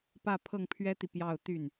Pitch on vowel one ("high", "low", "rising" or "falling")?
falling